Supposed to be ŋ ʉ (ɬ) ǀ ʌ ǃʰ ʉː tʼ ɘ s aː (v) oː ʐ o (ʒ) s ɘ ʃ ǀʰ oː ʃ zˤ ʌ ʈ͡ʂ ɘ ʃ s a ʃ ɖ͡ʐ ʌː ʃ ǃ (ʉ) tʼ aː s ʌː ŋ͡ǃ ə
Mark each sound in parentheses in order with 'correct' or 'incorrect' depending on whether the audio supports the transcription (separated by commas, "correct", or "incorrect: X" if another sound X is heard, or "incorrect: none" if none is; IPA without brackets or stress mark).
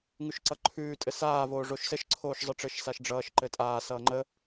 incorrect: ʃ, correct, incorrect: ʃ, incorrect: ɘ